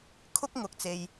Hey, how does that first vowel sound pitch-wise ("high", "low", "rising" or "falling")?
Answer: high